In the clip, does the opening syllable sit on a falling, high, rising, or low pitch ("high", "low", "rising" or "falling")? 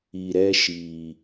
low